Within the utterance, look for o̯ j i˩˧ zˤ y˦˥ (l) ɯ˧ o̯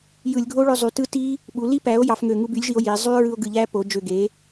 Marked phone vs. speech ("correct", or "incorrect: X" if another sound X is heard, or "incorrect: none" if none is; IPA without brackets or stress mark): incorrect: ɹ